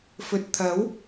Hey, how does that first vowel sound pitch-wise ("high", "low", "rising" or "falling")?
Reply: low